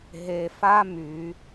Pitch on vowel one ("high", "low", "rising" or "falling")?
low